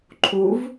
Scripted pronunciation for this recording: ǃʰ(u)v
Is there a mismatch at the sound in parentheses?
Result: no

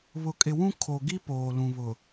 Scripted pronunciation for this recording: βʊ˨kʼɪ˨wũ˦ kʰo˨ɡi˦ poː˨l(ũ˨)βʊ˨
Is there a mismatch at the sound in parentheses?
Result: no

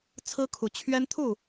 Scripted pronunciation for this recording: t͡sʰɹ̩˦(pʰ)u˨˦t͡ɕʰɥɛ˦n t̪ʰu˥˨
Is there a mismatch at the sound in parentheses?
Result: yes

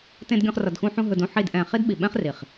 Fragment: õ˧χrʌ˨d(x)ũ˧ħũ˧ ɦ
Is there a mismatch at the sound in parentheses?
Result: no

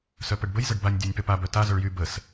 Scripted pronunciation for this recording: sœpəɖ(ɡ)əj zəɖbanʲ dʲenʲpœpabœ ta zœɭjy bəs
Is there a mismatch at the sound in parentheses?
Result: yes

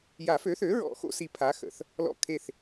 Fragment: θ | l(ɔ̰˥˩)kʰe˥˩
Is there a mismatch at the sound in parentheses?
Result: no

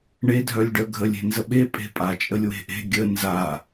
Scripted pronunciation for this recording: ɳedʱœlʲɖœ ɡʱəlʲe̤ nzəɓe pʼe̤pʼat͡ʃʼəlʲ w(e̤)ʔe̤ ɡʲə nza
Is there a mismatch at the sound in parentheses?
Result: no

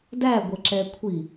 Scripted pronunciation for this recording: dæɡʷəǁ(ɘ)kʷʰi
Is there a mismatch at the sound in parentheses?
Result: yes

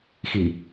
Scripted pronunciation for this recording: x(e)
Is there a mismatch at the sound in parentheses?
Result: yes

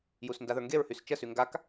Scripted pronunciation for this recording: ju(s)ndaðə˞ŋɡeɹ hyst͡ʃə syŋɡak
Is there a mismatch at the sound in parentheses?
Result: no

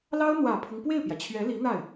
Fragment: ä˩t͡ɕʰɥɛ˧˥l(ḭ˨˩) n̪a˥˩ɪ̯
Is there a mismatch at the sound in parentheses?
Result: yes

